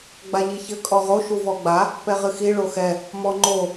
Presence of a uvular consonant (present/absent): present